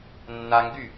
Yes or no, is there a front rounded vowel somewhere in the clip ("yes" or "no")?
yes